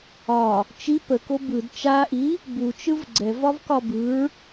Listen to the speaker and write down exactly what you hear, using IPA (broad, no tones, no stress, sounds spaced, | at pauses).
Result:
ɒ | t͡ʃ i p ə k o b ɯ d t͡ʃ a ʔ i | b u t͡ʃ ɯ v ɡ͡ǀ ɛ v ɒ v k ɒ b ɯ ɹ